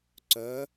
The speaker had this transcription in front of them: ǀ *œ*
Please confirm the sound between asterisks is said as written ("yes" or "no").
yes